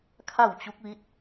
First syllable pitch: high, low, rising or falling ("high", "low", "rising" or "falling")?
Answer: falling